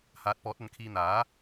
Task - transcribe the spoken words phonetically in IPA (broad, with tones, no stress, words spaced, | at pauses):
haː˨˥t̚pɔː˨˥t̚ɐ˨˧nkʰiː˧ n̪aː˨˥